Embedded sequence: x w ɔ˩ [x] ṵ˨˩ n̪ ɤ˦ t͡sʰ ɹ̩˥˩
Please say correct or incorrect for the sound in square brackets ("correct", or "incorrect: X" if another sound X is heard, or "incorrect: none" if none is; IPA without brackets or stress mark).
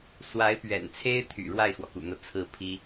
incorrect: k